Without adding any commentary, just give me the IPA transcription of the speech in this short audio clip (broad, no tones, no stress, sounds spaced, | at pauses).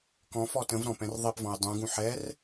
k ɔ̃ f ɔ t ə̃ v ɾ ɔ̃ p ɛ̃ r ðˤ i p v ɔ̃ j dˤ ũ ɡ ũ ħ ɛ r